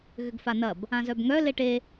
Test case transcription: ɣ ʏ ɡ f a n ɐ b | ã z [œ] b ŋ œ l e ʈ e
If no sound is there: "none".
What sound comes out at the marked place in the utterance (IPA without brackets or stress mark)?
œ